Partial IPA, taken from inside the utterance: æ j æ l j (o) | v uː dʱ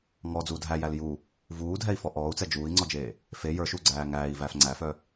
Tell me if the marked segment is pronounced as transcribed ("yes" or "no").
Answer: no